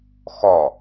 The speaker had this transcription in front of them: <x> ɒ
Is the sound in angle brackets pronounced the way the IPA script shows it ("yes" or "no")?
yes